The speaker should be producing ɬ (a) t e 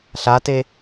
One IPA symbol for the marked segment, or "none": a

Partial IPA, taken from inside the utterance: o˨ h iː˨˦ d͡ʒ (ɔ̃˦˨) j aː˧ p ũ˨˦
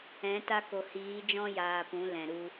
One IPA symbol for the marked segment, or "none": ɔ̃˦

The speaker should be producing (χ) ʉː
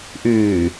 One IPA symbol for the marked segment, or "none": ʔ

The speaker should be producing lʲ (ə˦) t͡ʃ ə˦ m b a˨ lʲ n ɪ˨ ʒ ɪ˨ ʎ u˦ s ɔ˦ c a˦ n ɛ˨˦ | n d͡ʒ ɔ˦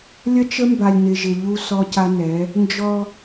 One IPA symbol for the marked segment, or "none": ə˦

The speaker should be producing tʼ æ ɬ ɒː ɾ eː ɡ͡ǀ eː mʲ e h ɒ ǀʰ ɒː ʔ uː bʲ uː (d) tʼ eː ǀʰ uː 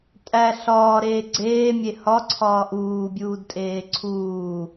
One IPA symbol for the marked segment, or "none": d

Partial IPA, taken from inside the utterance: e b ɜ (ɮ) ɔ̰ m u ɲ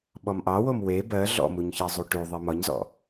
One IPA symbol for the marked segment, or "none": ɮ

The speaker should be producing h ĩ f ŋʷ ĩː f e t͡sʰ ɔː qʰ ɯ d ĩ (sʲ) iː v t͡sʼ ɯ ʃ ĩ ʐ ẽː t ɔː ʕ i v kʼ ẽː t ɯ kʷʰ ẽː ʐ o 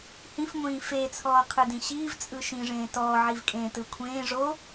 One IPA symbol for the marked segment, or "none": ɕ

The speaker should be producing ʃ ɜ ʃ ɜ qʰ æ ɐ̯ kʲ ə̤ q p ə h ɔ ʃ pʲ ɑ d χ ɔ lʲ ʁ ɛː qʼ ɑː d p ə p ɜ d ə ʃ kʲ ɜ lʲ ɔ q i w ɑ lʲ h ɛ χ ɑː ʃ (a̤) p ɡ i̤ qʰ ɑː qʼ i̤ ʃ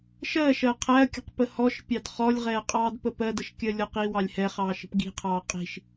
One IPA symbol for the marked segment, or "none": ə̤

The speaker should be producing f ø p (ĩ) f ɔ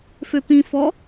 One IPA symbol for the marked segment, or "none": ĩ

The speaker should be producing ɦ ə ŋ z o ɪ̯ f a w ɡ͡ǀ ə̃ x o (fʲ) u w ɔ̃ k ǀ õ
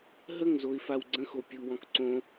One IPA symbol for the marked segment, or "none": pʲ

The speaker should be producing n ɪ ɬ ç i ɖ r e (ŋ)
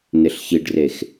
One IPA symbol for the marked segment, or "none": x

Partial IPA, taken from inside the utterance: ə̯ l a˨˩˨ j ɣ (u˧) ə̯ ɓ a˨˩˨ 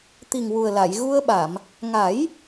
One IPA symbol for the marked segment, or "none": u˧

